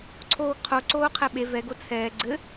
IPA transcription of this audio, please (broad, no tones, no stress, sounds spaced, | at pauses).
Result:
ǀʰ oː ɡ qʰ o ǀ oː qʰ ɛ ɓ e v ɛ ɡ o t͡sʰ ɛː ɡ͡ǀ ɘ